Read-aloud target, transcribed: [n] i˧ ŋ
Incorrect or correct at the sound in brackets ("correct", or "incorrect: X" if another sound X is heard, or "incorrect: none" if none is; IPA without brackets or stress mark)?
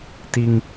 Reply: incorrect: t